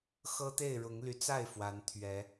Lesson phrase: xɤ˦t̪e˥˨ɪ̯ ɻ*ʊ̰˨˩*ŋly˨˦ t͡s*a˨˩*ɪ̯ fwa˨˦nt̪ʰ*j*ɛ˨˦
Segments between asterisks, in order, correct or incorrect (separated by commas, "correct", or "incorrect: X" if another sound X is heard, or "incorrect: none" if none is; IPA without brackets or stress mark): incorrect: ʊ˨˦, incorrect: a˥˨, incorrect: ɥ